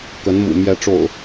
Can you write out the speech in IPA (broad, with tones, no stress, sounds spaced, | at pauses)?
k ə˨˦ n m ṵ˨˩ m j ɛ˨˦ ʈ͡ʂ o̰˨˩ ʊ̯